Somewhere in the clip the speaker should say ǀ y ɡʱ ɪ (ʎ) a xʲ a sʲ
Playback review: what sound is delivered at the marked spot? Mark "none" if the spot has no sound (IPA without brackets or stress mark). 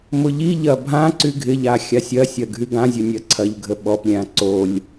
ʎ